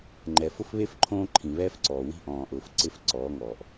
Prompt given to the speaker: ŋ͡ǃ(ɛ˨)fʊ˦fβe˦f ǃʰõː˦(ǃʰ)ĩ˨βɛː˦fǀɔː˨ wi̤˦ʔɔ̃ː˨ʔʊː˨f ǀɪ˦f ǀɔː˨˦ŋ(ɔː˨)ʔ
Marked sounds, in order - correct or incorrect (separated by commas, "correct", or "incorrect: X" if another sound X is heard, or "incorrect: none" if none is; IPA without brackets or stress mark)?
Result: correct, correct, correct